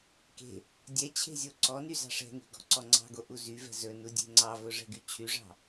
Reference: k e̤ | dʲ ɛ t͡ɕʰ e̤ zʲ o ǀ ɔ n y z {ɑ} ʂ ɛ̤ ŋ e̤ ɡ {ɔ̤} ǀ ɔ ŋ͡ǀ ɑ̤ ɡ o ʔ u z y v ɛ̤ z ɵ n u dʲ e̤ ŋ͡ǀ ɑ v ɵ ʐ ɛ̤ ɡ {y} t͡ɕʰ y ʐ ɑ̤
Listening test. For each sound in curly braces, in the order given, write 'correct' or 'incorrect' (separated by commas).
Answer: incorrect, correct, correct